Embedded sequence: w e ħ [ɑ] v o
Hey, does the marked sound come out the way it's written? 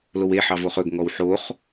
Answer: yes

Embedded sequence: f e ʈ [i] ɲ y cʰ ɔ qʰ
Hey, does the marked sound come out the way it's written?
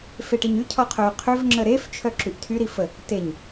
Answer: yes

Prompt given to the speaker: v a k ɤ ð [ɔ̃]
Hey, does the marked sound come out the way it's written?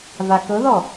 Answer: no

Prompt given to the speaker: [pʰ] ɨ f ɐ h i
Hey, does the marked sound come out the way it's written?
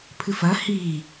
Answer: yes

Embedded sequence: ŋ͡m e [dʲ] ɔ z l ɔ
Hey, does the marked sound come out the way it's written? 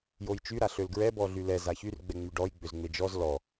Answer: no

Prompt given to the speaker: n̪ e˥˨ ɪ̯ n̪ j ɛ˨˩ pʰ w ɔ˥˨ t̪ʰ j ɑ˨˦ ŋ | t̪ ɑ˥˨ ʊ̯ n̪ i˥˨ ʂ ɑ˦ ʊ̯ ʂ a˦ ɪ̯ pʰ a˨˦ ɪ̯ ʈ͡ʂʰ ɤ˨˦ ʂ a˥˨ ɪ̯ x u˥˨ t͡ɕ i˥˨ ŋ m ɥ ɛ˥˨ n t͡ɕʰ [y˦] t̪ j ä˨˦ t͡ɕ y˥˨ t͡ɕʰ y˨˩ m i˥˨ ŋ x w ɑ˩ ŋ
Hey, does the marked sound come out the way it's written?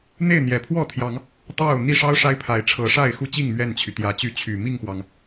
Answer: no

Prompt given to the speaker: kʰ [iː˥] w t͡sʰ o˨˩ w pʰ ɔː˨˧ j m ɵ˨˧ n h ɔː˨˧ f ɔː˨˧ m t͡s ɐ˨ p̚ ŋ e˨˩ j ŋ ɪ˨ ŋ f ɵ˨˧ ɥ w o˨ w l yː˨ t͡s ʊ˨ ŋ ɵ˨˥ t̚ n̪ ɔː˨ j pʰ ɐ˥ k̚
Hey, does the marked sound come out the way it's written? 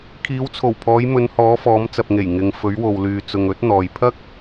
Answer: no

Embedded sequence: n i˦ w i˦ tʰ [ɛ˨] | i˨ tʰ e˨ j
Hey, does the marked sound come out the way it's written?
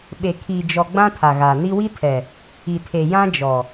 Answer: yes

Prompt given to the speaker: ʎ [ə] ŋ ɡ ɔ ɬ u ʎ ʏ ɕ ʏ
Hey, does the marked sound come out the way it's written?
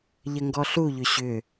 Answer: yes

